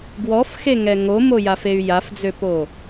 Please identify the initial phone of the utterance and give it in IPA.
ɡ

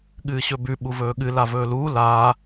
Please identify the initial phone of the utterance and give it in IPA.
ɠ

